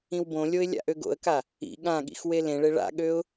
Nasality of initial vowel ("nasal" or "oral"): nasal